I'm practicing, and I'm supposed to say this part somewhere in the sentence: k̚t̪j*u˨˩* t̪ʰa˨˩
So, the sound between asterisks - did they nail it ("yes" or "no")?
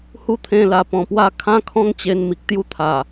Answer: no